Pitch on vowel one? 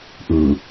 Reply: low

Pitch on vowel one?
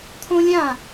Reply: high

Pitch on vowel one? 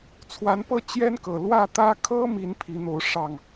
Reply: rising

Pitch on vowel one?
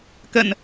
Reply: low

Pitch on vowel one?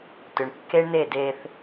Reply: low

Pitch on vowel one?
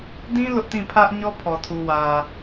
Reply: high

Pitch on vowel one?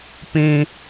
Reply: high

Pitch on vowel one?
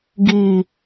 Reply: low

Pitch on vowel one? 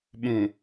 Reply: low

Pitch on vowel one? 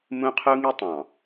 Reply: high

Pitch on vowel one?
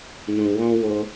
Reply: low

